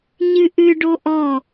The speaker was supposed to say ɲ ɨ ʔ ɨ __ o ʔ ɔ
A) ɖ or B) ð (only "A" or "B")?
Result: A